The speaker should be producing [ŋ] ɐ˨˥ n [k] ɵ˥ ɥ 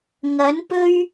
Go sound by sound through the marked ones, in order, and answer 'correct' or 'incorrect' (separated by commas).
correct, incorrect